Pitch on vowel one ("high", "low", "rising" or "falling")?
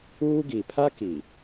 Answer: high